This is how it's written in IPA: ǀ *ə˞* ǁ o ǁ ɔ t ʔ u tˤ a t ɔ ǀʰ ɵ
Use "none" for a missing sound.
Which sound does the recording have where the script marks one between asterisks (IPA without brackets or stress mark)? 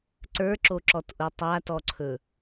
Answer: ə˞